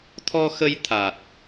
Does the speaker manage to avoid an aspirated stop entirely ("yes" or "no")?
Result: no